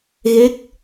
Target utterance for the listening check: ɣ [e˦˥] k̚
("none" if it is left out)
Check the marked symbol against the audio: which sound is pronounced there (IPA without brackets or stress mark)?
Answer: e˦˥